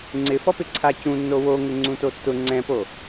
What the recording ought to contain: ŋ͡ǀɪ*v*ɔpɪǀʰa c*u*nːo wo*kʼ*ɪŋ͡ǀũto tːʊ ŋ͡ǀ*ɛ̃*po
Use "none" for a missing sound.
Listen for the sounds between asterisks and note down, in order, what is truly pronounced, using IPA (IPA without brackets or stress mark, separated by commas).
f, ũ, ŋ, ɛ̃